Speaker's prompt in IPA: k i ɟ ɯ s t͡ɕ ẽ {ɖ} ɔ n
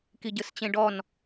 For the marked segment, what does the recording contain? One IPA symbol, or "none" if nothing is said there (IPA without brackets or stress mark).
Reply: ɖ